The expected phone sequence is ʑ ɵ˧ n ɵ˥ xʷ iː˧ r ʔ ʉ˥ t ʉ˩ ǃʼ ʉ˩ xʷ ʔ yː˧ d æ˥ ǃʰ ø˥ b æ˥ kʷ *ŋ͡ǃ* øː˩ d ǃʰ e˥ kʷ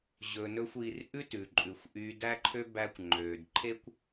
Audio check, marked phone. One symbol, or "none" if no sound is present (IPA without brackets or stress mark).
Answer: ŋ͡ǃ